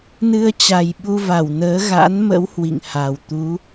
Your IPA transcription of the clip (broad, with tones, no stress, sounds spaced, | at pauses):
n ɨ˧ ə̯ t͡ɕ a˨˩ j ɓ u˧ v a˧˩ w n əː˨˦ ɣ a̰˧˥ n m ə̰˧˥ w h w ḭ˧˨ ŋ h a˨˩ w t̪ u˨˦